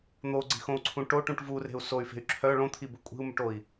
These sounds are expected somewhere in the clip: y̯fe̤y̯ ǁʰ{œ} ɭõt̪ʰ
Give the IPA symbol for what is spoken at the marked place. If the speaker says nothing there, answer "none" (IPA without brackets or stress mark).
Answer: œ